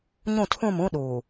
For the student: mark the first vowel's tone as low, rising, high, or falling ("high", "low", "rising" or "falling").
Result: falling